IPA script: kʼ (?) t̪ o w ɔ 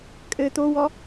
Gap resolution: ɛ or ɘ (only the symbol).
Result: ɘ